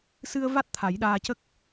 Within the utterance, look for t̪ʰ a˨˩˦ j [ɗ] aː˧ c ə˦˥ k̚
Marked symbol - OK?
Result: yes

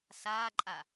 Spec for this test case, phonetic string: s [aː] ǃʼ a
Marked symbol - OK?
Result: yes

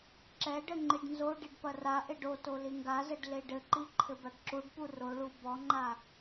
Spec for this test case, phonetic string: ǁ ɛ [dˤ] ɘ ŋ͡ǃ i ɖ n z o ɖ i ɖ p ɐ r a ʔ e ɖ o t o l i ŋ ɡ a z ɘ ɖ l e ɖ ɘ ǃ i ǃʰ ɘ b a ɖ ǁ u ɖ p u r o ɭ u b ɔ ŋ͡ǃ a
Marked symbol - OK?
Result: no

